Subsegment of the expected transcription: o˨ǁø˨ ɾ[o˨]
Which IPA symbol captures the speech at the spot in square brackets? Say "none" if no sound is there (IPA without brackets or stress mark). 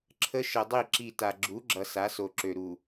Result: u˨